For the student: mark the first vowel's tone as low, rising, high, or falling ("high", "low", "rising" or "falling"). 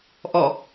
falling